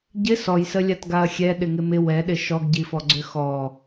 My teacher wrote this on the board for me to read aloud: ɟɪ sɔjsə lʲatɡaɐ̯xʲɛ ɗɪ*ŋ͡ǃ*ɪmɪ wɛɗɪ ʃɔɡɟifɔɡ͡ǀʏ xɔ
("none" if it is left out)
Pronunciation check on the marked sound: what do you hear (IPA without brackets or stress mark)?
ŋ